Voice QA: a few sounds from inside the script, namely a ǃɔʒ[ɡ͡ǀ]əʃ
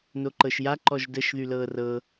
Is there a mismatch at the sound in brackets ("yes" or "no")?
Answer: yes